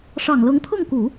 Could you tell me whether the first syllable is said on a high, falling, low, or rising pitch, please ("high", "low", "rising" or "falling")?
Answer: low